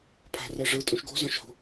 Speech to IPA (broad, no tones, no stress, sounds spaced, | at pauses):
pʰ a̤ r ɛ ʐ ɯ tʼ ũ ʃ ɡ o̤ z ɔ̃ ʃ h o̤